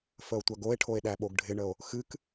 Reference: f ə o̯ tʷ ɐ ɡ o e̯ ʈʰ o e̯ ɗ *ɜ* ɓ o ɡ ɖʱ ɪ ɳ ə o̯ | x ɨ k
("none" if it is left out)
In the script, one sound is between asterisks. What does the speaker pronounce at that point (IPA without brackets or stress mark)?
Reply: æ